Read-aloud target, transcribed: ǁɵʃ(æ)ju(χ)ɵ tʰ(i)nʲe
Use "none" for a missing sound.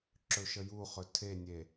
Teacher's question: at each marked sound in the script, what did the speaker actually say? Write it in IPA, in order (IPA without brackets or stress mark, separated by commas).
ə, χ, e